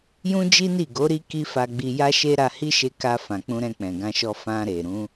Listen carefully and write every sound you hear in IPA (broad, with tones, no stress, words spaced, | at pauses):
jũ˦d͡ʒi˦ni˦˨ɡo˨˦ ɾi˦ki˦fa˧ɡ͡bi˧ ja˦ʃe˦ ɾa˧hi˦ʃe˧ ka˧ fã˨k͡pũ˧ɾɛ̃˧k͡pɛ̃˨ ɡã˧ʃɔ˧ fã˧ɾe˨ ɾũ˨˦